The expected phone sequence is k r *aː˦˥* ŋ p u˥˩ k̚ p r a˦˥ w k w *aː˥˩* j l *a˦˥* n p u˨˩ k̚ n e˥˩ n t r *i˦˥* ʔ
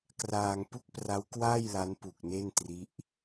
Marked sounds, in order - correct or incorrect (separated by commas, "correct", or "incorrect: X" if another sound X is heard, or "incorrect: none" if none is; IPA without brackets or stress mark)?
incorrect: aː˧, correct, correct, correct